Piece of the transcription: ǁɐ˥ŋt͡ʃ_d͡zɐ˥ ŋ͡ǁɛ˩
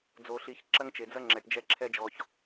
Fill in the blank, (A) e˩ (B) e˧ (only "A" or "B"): A